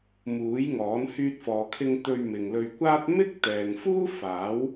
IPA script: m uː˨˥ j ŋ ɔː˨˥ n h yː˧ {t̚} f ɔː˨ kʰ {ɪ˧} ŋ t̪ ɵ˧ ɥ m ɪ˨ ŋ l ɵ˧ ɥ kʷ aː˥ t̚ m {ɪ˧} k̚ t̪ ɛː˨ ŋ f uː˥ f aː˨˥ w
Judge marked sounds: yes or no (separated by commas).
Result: yes, yes, no